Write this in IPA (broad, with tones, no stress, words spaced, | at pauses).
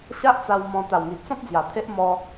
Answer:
ɕa˦ʔt͡sa˧w mɔ̃˧ t̪a˨˩wŋi˨ʔt͡sɔ̃˦p̚d͡zja˨˩ t̪ʰe˦ʔ mɔ˧